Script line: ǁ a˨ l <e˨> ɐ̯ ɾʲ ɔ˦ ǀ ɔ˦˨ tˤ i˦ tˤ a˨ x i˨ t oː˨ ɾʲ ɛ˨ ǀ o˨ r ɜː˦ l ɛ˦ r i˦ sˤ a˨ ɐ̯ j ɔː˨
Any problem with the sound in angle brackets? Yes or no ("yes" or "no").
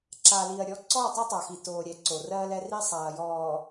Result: yes